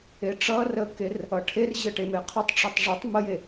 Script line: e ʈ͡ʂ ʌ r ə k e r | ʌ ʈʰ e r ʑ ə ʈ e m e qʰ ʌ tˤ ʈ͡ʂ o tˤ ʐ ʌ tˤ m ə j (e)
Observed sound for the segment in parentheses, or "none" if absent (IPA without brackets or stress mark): e